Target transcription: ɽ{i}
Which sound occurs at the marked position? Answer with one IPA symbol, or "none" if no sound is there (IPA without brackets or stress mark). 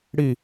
i